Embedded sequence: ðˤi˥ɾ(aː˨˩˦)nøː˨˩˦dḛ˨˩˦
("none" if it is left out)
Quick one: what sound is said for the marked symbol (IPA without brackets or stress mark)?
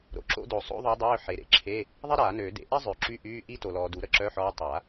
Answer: aː˨˩˦